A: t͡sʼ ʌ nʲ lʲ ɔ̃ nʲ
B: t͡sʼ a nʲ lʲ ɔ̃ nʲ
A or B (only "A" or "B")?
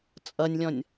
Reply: A